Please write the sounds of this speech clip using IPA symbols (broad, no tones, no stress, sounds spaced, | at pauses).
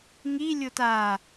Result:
ŋ i lʲ o t a